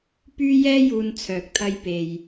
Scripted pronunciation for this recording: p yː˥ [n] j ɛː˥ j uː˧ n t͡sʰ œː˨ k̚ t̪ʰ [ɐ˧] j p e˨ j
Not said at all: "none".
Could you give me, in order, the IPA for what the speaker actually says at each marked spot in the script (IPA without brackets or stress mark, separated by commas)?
none, ɐ˧